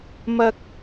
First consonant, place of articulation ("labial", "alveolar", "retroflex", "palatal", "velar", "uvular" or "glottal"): labial